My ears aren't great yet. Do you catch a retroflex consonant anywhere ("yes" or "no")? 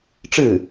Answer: yes